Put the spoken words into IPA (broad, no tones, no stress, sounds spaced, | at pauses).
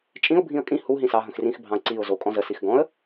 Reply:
t͡ʃʼ ĩ ʊ̯ bʱ ĩ ə̯ kʼ ĩ h u ɦ ĩ s ɑ ɦ ə̃ x r ĩ x bʱ ɑ̃ ə̯ ǀ i ʊ̯ z o kʼ ɔ̃ z ə s i x ɡ ɔ̃ ə̯